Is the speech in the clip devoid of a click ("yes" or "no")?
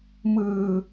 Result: yes